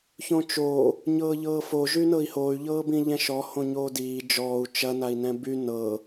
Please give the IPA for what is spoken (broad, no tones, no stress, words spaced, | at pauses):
çõt͡ʃoː | ɲɤːʎɤːfo ʒynɤi̯hoy̯ ʎɤːbĩʎɛ̃ʃɔ hõɲoːdiː d͡ʒɔːu̯ t͡ʃɐ nai̯nɛ̃by nɤ